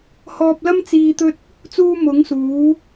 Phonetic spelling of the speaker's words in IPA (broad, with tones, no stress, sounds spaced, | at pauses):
h ɔː˧ p̚ l ɐ˥ m t͡s iː˧ t̪ ɵ˥ t̚ | t͡s uː˧ m ʊ˨˥ ŋ s uː˨˥